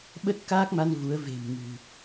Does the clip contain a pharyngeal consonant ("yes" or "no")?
no